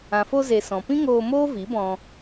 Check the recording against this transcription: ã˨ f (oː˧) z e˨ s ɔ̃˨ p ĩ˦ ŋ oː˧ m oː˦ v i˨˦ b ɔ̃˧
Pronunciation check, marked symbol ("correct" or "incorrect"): incorrect